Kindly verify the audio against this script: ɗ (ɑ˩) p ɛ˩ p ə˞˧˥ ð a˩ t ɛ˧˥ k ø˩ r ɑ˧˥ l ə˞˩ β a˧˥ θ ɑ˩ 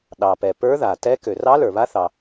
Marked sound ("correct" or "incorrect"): correct